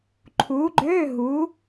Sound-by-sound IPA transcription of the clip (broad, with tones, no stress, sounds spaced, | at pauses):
ǃʰ u˨˥ ɡ͡ǃ ø˧˥˧ ɦ u˨˥